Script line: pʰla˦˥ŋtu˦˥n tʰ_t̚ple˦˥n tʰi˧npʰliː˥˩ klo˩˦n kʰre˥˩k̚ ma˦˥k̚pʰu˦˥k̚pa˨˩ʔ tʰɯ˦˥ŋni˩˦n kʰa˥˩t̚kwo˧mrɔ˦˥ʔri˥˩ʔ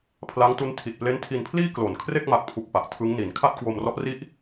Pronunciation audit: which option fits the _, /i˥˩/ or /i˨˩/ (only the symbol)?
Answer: i˨˩